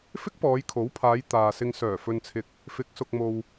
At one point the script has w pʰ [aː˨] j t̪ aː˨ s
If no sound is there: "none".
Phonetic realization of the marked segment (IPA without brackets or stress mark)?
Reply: aː˨˧